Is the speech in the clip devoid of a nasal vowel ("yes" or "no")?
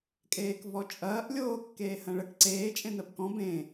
no